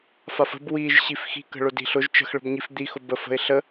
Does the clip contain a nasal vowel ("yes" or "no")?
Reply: no